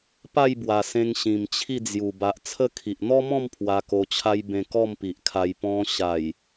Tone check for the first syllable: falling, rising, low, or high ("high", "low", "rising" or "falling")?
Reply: falling